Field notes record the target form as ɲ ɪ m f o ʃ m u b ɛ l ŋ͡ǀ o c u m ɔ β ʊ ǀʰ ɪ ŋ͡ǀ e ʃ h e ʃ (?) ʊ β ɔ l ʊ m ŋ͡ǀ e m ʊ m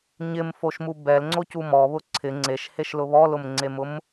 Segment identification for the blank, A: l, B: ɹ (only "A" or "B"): A